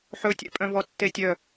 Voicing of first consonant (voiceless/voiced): voiceless